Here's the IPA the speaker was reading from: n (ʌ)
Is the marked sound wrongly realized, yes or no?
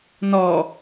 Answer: yes